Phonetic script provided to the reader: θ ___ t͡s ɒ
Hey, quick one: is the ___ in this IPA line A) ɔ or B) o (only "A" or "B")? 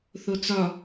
B